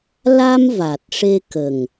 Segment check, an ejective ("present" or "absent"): absent